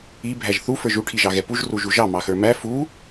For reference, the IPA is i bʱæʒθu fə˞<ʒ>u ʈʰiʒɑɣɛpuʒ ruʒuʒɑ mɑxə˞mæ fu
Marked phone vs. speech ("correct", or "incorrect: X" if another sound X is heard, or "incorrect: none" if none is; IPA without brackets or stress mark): correct